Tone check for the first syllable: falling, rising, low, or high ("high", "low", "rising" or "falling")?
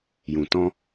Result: low